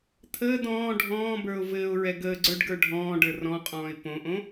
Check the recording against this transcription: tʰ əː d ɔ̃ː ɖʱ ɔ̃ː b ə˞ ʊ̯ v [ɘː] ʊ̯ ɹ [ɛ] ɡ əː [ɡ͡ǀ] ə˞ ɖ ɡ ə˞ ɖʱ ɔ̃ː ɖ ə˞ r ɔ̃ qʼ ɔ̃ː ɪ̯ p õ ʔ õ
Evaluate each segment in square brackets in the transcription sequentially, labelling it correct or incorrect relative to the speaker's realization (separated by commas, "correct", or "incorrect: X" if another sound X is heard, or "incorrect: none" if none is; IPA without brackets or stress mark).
correct, correct, correct